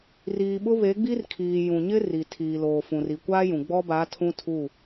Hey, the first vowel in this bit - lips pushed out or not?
no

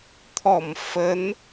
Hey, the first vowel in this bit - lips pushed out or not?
yes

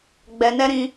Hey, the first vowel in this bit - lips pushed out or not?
no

